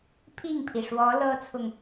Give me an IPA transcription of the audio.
pʰ i˥˩ ŋ pʰ i˩ ʂ w ɔ˧˥ l ɤ˥ t͡sʰ ʊ˨ ŋ

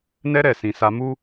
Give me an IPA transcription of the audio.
n ɛ˦ ɾ ɛ˦˨ s ĩ˧ s a˦ m u˦

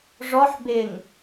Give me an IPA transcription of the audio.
ʐ ɔ ħ b ɪ ŋ

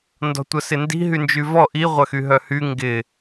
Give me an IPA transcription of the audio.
n d ɔ̤ tʷ ɐ s ɪ n d i̤ ɦ y n d͡ʒ y v ɔ ʔ i ʁʷ ɐ x y ɦ œ h y ŋ ɡ ɪ

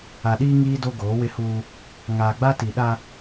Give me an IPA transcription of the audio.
a˨ ɗ iː˦ ŋ iː˦ d o˦ ɡ oː˨˦ w ɪ˦ h uː˦ | ŋ aː˨ ɡ͡b a˦ t i˨ ɗ a˦

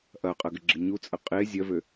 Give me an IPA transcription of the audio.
ʔ ɐ qʼ ɐ ɡ ɪ ɡ͡ǁ ɪ ɲ u t͡sʼ ə qʼ e zʲ ɐ v ø

